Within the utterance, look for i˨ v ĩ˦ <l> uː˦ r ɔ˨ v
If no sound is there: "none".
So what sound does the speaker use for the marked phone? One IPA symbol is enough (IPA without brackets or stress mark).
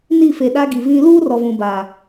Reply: l